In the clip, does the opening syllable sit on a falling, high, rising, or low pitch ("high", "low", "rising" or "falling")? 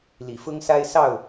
low